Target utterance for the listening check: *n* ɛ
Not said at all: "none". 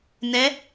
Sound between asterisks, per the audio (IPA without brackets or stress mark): n